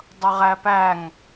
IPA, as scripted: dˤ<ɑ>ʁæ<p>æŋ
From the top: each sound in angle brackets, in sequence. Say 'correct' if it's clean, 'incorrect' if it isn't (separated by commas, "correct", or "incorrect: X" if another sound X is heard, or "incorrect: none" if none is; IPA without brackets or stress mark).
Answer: incorrect: ʌ, correct